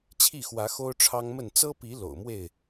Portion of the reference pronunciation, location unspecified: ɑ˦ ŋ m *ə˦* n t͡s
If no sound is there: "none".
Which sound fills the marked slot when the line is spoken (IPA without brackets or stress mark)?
ə˥˨